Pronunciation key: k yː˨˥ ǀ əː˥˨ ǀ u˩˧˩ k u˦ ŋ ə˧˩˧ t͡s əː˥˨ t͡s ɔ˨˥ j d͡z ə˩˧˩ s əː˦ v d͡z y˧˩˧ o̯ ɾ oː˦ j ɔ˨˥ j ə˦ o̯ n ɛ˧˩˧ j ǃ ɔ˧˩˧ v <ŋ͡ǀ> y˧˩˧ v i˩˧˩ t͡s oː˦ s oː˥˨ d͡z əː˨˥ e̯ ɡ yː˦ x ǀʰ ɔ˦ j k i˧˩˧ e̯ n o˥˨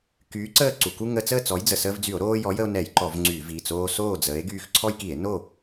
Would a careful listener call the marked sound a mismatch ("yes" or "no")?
no